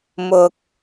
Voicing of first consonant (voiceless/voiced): voiced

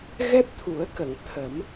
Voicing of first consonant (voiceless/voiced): voiced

